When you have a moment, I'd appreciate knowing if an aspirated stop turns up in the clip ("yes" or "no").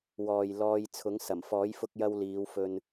yes